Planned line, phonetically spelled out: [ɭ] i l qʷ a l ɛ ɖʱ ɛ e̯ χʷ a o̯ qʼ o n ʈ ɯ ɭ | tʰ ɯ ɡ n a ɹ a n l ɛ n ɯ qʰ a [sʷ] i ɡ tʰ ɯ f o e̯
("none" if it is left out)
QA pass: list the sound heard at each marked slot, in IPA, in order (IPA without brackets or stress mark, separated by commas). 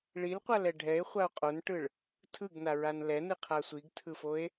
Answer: ɭ, sʷ